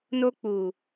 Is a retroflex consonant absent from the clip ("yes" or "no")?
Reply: yes